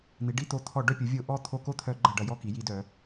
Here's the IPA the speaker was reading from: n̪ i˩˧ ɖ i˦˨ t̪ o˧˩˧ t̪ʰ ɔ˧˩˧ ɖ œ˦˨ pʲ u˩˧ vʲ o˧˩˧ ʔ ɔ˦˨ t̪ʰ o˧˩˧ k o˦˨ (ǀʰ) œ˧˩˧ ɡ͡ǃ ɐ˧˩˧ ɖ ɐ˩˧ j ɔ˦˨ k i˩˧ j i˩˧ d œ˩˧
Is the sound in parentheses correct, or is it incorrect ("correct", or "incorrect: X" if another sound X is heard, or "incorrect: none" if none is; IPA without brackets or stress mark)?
incorrect: t̪ʰ